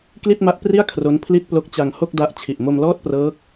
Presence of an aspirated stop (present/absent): present